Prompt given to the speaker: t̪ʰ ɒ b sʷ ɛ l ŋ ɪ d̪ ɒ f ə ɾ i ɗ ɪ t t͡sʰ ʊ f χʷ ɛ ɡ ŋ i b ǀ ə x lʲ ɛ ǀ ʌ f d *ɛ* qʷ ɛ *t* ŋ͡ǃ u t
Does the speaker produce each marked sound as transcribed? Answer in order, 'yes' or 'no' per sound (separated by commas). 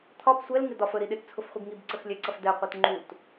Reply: yes, yes